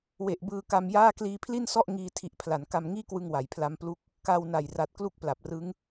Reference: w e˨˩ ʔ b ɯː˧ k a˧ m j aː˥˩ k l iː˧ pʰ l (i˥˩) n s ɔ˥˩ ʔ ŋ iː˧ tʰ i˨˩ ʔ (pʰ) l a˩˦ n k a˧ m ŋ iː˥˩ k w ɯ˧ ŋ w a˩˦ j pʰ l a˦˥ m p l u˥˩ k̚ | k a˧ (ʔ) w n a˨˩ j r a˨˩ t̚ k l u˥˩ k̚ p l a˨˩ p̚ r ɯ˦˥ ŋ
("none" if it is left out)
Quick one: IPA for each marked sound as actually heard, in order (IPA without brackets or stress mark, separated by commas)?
i˥˩, pʰ, none